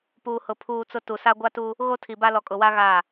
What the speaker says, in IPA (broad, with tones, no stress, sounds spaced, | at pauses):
p uː˨ h ʊ˨ pʰ uː˨ t͡s ʊ˨ t u˨ s a˦ ɡʷ a˦ t u˦ | ɣ o˦ tʰ i˨ b a˦ l ɔ˨ kʼ ʊ˨ w a˦ ɣ a˦˨